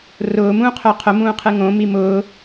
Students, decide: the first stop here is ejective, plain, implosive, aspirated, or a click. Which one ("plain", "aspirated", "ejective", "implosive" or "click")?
aspirated